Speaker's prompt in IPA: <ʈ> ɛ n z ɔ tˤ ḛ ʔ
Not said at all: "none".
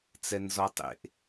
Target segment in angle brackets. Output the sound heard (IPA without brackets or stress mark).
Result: t͡s